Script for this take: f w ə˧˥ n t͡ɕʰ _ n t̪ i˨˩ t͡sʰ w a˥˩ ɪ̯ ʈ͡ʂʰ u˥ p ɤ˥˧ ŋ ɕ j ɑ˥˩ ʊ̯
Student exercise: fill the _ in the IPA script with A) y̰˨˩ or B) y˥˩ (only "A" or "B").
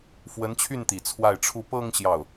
B